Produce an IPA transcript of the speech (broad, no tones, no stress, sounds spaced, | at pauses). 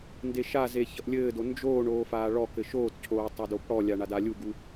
n d e ʃ a z e ç ʌ ʔ lʲ ɘː d o n d͡ʒ oː ɳ oː f aː ɭ ɔ k ɘ ʃ oː t cʰ oː tˤ o d o p ɽ ɔ lʲ a ɳ a d a lʲ u ɡ u